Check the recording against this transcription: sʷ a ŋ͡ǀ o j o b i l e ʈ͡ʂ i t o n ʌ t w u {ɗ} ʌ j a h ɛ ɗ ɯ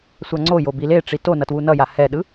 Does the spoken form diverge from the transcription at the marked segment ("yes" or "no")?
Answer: yes